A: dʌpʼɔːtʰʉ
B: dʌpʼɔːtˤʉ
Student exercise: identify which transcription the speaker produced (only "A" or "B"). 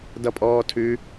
A